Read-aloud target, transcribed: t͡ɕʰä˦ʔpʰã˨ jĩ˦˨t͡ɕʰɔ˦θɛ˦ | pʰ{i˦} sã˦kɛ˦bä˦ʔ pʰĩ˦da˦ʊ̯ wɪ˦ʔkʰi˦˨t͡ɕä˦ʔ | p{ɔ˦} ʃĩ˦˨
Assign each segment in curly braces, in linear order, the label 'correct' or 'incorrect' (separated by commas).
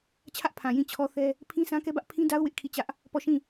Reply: incorrect, incorrect